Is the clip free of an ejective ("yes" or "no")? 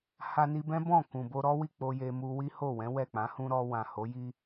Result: yes